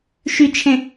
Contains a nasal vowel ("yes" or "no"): yes